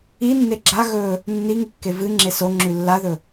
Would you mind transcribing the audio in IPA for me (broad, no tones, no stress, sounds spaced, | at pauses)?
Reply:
i nː e ɡ͡ǁ a ɣ ɵ | nː i ŋ ɨ kː e v ɨ ŋ͡ǁ e s o ŋ͡ǁ ʉ lː a ð ɵ